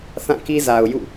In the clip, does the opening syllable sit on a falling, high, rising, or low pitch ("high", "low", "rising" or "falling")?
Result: falling